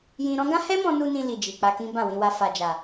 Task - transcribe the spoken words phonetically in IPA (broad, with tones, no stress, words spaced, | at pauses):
jĩ˧ɾɔ̃˦ ɡã˦hɛ˦mɔ̃˧nu˧ nĩ˧ li˨d͡ʒi˨ k͡pa˧kĩ˦bã˦˨wĩ˧ wa˧fa˨d͡ʒa˨